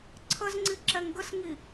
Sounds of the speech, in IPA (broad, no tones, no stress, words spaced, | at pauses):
ǀʰəzŋ͡ǀi ǁɛŋɡəsŋi